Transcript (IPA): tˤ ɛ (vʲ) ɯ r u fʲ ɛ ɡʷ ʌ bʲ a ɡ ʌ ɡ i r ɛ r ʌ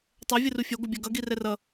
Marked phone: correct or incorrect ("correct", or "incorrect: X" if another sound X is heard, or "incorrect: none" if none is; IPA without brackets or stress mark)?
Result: correct